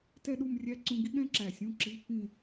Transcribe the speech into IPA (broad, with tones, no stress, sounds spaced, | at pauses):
t ɛ˥˧ ɗ u˥˧ m rʲ æ˦˥ ǀ ũ˦˥ ɡ i˦˥ ɠ ɛ̃˦˥ ǁ æ˨˩ sʲ ũ˧˥˧ ǁ i˧˥˧ pː ĩ˥˧